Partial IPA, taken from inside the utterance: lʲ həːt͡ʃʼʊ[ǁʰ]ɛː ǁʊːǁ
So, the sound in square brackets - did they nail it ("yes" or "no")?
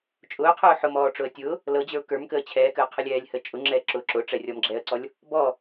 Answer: no